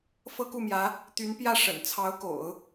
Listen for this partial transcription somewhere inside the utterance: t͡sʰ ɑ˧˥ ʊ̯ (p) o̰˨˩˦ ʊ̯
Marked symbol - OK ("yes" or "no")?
no